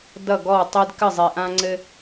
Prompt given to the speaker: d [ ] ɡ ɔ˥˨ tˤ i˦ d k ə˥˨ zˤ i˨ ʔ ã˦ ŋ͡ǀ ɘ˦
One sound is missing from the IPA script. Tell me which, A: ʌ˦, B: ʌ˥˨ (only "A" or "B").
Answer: B